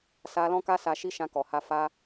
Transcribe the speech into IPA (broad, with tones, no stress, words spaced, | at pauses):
sa˧lɔ̃˦ka˦ sa˧ʃi˦ʃã˧ kɔ˨ha˧ fa˧